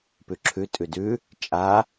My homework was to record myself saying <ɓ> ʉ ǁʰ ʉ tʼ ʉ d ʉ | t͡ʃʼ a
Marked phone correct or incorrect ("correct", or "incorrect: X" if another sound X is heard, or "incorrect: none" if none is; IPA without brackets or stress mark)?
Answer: incorrect: p